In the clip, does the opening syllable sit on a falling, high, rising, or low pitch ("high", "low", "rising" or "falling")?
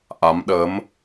rising